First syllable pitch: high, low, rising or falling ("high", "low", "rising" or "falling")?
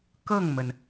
falling